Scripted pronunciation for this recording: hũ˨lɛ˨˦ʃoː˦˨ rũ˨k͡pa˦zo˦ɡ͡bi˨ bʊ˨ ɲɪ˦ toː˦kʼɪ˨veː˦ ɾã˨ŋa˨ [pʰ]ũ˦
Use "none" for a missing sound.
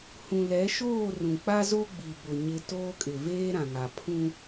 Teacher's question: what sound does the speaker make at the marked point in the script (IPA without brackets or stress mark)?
pʰ